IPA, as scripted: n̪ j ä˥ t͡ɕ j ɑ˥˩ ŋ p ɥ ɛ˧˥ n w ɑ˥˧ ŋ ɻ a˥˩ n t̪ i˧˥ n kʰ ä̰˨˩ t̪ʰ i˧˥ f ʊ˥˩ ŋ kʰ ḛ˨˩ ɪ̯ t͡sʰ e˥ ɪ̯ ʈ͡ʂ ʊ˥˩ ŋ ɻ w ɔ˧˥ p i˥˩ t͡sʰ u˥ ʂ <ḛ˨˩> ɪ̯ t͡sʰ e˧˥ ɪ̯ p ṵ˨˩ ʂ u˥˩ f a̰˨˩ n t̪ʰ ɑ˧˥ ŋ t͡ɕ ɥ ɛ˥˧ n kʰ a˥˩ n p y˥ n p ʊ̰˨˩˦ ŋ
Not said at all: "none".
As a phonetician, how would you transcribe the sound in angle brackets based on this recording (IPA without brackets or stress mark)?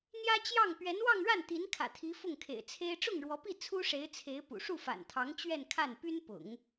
e˧˥